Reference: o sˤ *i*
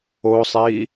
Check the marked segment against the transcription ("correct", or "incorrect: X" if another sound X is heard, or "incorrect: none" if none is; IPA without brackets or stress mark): correct